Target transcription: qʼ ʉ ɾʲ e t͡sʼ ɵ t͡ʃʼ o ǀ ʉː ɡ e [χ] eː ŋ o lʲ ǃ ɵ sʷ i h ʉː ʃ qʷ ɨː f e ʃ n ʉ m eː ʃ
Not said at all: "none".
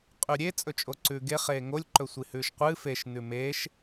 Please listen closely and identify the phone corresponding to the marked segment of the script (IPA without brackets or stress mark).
χ